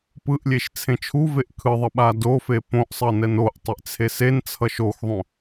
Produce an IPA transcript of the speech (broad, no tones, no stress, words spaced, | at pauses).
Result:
pɯʔlʲeʃ t͡sʰẽt͡ʃʰuveʔ kʰɯðˤʌ ɓadofe põʔsˤʌ nɛnoʔtˤeʔ t͡sʰesent͡sʰʌʃ oxðˤõ